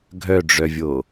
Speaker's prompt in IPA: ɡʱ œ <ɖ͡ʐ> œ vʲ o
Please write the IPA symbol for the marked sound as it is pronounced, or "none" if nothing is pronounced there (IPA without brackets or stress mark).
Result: ɖ͡ʐ